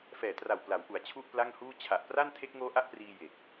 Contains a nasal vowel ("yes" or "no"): no